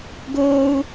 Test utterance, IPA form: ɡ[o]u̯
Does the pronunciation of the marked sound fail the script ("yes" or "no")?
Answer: no